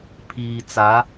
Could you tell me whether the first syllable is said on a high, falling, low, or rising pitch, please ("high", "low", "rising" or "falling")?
low